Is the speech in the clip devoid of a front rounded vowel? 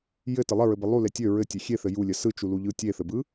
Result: no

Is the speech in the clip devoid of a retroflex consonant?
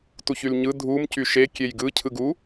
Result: yes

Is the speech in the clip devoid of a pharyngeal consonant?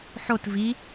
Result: no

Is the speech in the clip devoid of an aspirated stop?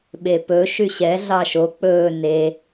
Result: yes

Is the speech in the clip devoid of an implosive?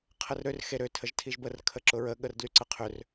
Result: no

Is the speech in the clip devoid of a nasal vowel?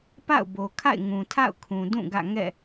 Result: no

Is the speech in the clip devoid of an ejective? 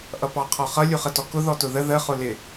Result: yes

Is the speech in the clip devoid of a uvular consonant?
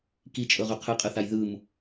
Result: no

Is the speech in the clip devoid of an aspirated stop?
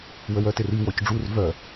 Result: yes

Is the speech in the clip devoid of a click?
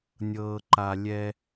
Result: no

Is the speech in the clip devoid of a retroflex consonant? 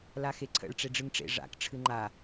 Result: no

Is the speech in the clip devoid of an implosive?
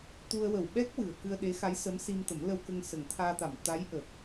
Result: no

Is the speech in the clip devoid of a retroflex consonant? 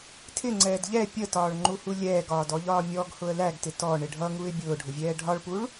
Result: no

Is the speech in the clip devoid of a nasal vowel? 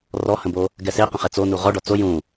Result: no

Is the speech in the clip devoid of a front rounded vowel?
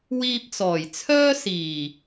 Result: no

